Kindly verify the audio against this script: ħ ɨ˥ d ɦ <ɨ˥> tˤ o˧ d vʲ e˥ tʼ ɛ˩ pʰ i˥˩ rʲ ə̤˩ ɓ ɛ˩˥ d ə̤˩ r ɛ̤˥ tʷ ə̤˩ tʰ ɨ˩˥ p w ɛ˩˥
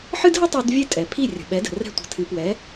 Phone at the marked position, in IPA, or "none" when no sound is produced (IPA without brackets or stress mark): ə˥